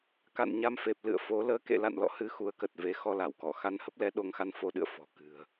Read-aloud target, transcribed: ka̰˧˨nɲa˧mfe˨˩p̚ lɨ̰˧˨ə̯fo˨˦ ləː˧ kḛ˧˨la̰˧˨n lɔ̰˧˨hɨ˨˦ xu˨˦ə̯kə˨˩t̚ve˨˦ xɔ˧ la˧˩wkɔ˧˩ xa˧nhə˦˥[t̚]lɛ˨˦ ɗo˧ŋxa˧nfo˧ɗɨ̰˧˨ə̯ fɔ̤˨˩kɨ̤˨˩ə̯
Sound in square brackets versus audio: incorrect: p̚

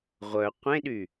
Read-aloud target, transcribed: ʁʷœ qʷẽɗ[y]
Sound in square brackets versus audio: correct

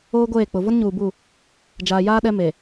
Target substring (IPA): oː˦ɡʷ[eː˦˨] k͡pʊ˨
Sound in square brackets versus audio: correct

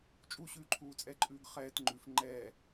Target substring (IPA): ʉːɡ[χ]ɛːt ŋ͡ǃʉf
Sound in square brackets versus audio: correct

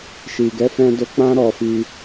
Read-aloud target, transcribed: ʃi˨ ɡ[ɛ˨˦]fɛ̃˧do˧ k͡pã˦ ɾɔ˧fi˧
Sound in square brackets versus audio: correct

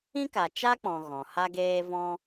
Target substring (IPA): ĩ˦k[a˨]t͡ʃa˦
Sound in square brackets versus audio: correct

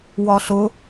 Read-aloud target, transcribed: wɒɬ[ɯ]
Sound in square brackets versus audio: incorrect: ʊ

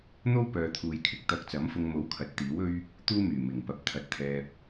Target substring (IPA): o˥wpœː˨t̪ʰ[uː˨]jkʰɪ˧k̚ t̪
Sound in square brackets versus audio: correct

